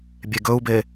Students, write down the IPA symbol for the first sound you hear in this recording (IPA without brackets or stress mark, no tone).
bʲ